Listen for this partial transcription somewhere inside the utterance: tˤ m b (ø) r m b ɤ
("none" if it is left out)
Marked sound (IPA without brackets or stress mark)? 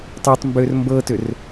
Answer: ø